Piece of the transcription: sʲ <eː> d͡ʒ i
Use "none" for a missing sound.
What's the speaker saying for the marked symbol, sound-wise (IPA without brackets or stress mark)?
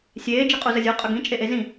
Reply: eː